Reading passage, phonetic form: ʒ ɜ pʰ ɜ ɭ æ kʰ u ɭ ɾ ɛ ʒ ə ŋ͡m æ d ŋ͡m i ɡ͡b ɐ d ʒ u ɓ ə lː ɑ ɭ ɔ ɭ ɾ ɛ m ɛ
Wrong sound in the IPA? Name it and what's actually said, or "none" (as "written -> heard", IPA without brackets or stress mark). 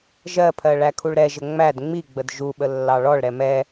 ɐ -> ə